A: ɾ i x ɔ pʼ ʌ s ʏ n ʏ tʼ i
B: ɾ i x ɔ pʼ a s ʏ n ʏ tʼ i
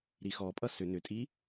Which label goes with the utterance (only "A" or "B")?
A